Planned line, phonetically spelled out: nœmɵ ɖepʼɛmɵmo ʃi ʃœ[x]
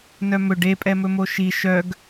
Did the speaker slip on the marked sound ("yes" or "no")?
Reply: yes